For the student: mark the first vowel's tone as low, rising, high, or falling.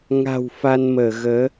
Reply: low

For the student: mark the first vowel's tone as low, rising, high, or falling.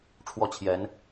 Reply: falling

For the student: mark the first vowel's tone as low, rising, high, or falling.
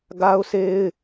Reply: high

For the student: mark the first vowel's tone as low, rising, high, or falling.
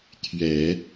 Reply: low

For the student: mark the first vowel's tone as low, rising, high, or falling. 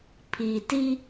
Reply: low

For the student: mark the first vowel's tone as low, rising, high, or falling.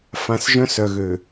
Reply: low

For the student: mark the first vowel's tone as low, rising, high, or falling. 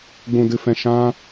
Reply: low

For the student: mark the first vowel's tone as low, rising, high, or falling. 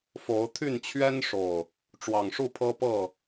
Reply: rising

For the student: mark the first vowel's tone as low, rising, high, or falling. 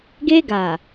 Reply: high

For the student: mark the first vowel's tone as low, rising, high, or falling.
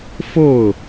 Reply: falling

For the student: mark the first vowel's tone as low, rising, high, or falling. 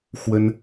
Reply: high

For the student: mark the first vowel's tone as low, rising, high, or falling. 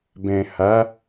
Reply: low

